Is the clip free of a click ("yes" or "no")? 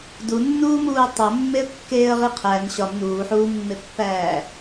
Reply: yes